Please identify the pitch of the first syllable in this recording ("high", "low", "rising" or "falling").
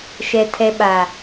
low